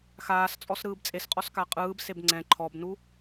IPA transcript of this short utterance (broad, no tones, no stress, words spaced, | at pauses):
xaːst͡sʼɔs ɾɯːbt͡sʼesqʼɔs kaqʼɯːbseb ŋ͡ǀɛ̃ ǃʰɔbnu